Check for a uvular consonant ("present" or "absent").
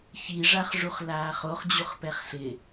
present